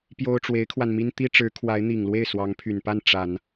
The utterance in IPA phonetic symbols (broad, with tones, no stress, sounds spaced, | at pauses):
p j o˥ ʊ̯ ʈ͡ʂ w e˧˥ ɪ̯ kʰ w a˧ n m i˥ n t̪ i˥ ʈ͡ʂ ɻ̩˧˥ kʰ w a˧˥ ɪ̯ n̪ i˨˩ ŋ l w e˥˩ ɪ̯ s w ɑ˧˥ ŋ pʰ y˨˩ n p a˥˩ n ʈ͡ʂ a˨˩˦ n